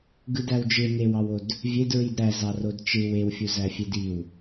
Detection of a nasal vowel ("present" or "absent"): absent